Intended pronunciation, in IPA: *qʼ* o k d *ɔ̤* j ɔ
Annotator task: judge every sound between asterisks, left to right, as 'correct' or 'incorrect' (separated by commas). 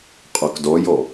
correct, incorrect